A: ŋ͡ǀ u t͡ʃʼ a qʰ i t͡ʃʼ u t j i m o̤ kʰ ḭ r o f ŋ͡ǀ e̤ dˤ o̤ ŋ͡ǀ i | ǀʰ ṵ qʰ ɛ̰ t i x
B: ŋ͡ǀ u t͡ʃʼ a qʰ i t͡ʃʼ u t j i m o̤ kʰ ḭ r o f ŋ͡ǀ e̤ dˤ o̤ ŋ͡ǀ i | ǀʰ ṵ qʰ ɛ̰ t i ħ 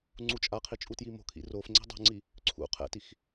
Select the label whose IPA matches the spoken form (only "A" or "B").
A